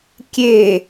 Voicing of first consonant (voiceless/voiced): voiceless